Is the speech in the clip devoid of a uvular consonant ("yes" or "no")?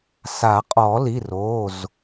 no